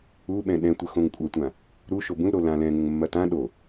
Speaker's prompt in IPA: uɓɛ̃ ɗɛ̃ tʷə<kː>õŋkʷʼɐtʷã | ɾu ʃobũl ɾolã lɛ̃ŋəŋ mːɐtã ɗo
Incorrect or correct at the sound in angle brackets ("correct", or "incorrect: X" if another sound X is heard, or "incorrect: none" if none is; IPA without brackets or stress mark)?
incorrect: x